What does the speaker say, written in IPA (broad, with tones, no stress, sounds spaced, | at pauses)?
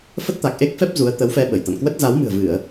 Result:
f ə˦˥ t̚ t̪ a˨˩ k̚ ʔ e˦˥ k̚ f ɛ˦˥ p̚ z u˨˦ ə̯ t̪ ə˨˦ w f ɛ˧ ɓ ə˧˩ j t̪ a̰˧˨ n k w ə˦˥ t̚ z a˨˦ w m ɨ̤˨˩ ə̯ v ɨ˧˩˨ ə̯